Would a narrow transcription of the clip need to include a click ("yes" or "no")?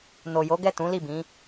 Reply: no